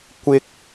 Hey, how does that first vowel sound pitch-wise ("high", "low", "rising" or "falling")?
high